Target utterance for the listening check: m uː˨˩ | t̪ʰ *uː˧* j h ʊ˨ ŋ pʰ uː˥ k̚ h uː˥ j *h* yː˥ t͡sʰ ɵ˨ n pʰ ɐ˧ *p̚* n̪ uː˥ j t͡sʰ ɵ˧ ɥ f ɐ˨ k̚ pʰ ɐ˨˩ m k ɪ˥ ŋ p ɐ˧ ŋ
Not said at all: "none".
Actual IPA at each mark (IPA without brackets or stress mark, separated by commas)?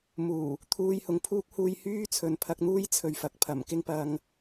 uː˧, h, k̚